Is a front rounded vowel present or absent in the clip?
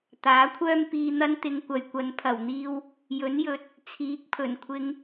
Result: present